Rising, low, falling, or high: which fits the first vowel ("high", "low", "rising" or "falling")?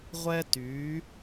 high